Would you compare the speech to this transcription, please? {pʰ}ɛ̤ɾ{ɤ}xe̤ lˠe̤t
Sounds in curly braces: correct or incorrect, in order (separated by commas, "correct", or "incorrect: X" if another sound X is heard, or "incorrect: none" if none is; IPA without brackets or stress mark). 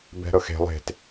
incorrect: b, correct